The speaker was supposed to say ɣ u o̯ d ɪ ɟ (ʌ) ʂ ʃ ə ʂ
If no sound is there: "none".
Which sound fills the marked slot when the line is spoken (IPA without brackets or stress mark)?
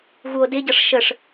ʌ